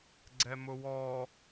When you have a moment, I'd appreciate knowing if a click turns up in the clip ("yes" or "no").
yes